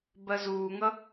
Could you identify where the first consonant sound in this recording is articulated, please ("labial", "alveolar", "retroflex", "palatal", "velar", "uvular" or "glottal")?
labial